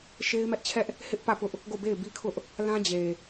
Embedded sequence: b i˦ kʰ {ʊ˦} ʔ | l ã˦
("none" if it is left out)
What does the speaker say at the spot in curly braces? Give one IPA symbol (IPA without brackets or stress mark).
ʊ˦